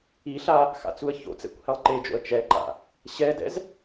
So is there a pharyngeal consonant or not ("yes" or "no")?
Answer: no